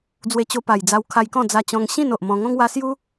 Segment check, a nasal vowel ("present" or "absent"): present